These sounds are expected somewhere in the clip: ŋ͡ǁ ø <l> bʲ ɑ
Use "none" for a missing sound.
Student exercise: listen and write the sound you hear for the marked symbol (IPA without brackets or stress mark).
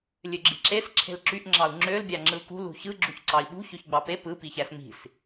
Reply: l